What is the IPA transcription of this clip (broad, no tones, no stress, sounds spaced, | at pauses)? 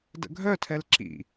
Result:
d ə̰ ɡʱ œ tʰ ɛ l ǁ ḭ